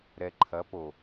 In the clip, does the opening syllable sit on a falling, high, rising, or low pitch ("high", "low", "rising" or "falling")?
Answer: low